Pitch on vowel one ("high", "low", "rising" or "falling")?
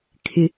high